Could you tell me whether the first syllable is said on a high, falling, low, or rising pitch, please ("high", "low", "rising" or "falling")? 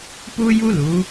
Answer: high